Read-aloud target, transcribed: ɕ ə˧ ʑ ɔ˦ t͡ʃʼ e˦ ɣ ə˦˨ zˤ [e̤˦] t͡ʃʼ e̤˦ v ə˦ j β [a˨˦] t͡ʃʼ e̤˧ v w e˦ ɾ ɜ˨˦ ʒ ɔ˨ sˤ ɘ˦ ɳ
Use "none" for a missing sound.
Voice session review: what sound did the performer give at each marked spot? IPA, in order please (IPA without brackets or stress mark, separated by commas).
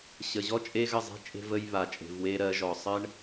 e̤˦, a˧